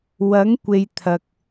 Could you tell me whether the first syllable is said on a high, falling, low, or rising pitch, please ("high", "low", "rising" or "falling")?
rising